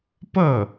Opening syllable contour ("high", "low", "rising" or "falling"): falling